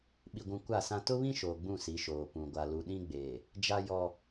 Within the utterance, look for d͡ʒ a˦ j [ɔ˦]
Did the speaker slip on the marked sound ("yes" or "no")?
no